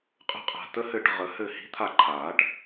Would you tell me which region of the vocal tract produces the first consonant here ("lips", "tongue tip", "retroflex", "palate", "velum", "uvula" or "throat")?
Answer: uvula